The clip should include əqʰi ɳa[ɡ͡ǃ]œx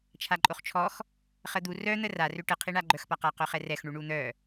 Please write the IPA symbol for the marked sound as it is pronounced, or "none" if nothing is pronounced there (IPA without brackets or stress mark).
ɡ͡ǃ